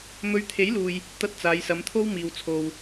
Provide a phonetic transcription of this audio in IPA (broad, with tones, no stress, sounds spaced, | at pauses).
m ɵ˧ ɥ t̪ʰ e˨˥ j l uː˨ j | t̪ ɐ˥ t̚ t͡s aː˨˧ j s ɐ˨˧ m t̪ʰ o˥ w m iː˨ w t͡sʰ o˨ w